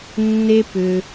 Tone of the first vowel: high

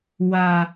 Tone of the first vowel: low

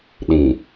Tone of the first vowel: low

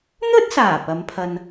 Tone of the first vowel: high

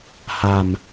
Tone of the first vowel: low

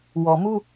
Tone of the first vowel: low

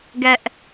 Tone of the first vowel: high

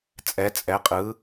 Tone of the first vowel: rising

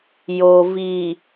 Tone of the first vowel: low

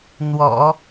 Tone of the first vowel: low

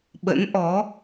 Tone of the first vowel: rising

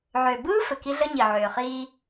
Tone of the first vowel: low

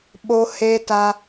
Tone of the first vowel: high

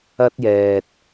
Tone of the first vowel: high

